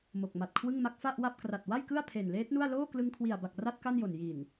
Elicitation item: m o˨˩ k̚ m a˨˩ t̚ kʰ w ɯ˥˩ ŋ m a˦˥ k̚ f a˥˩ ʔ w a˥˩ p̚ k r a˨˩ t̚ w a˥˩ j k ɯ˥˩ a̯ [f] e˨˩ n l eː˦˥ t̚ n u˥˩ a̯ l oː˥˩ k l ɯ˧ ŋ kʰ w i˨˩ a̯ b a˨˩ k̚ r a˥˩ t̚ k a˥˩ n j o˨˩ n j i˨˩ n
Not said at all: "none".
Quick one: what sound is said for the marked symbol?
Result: pʰ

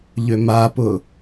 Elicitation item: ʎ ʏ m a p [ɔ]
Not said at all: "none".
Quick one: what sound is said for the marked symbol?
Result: ʊ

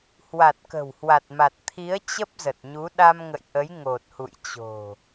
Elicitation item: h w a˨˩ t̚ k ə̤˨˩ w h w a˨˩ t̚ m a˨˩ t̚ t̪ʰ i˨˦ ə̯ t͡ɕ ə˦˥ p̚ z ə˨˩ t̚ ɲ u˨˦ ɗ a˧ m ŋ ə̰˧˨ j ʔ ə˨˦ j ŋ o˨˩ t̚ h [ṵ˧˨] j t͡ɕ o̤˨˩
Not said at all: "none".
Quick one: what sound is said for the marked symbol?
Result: ṵ˧˨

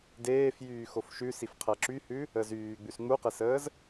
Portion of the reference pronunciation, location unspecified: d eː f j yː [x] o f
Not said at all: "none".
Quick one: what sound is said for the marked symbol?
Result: x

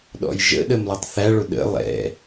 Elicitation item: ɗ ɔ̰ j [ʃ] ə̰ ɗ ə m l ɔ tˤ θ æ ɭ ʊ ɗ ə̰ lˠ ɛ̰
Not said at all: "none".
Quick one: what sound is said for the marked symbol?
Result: ʒ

